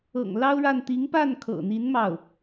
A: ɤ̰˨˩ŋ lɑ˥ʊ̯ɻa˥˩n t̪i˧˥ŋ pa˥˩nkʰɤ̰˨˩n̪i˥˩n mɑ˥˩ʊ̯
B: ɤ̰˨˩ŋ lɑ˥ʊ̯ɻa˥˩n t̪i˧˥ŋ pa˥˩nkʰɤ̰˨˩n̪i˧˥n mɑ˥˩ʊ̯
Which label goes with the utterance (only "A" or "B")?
B